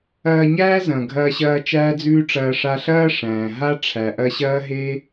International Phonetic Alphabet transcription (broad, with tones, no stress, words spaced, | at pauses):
ɐː˧ɲæː˦ zɐ̃˨ɡʱɐː˧ɕɐː˧ t͡ʃæː˦d͡zʉː˦ʈ͡ʂɐː˧ ʂa˧ɬɐː˦ ʂæ̃ː˨ɦa˦ ʈ͡ʂʰæ˨ʔɐ˧ɕɐː˦ɦe˦